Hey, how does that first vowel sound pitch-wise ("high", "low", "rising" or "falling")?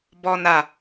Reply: low